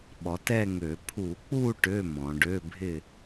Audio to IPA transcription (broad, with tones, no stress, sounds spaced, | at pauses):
ɓ ɔ˩˧ t ɛ˥˧ ŋ ø˧˩˧ pʰ u˧˩˧ k͡p u˥˧ ʈ ø˧˥˧ m ɔ̃˩˧ ɖ ø˧˥˧ bʱ ɪ˥˧